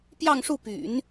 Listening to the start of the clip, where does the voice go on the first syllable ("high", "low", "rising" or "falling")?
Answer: falling